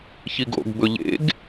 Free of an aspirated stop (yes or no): yes